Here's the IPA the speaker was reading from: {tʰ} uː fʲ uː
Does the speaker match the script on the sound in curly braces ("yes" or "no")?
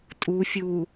no